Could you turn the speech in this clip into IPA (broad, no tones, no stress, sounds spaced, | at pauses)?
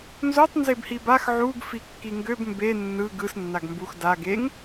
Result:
n z o tˤ n z e b h i b a x ʕ u ɡ f i kː i ŋ ɡ ø b m b e nː ɯ ɡ ɯ s nː a ɡ m b u x d a ɡ e ŋ